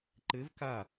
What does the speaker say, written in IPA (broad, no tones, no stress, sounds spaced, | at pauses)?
ǃ ɘ v k a